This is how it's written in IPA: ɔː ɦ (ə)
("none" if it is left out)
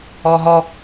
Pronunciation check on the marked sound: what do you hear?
ɔ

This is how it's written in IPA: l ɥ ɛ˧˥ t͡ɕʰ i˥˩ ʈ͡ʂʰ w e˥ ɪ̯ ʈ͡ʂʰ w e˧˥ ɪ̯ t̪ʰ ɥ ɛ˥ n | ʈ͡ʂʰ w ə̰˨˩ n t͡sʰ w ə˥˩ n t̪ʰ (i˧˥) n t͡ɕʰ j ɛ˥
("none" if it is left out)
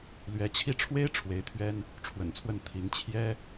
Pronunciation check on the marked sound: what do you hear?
i˧˥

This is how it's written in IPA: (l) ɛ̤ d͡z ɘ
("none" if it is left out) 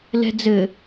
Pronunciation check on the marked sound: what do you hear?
l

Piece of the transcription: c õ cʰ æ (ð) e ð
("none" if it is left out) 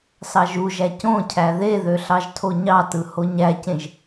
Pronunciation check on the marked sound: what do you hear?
ð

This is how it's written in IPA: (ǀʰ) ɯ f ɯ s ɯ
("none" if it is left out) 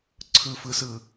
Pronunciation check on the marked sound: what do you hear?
ǀʰ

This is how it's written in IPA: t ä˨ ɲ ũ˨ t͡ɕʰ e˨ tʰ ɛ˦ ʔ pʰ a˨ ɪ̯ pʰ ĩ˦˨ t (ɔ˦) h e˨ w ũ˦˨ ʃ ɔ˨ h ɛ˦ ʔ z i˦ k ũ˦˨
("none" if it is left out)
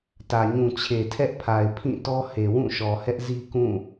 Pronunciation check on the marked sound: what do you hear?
ɔ˦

